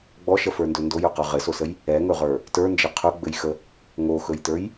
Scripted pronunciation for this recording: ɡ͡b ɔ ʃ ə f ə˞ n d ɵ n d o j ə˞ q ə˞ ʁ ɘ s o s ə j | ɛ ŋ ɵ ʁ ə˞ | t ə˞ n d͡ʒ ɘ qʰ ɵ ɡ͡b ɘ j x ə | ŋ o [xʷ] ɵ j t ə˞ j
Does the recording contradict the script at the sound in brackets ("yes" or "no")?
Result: yes